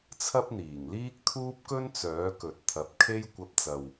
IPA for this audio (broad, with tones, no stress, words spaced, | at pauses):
t͡sʰɐ˥p̚n̪iː˨˩ŋliː˥k̚t̪ʰuː˥p̚ kɵ˥n t͡sœː˨˥kɵ˨t̚t̪ʰɐ˨˥p̚kʰe˥j kʷɐ˧p̚ t͡sɐ˨w